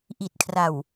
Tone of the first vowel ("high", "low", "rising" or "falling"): low